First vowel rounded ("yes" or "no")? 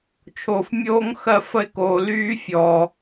yes